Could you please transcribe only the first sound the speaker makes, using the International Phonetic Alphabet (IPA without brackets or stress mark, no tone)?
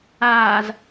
aː